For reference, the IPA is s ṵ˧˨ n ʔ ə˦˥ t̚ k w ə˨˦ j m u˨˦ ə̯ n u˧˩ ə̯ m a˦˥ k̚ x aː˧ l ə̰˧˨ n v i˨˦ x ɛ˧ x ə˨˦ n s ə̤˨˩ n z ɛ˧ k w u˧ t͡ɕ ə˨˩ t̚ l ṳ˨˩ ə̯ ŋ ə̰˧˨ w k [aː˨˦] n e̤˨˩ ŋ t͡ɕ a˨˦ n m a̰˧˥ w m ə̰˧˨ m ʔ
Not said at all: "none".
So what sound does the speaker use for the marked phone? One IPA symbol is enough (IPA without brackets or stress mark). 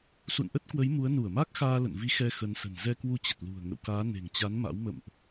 aː˨˦